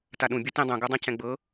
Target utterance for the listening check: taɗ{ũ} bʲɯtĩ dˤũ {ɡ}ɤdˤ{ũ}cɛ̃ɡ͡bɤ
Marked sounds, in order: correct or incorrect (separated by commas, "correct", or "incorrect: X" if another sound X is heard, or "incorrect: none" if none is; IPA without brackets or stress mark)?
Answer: correct, correct, correct